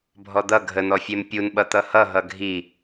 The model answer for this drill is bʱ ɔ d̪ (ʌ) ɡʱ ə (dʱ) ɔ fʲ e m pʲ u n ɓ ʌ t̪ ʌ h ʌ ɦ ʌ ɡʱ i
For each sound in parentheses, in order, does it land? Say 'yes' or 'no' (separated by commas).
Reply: yes, no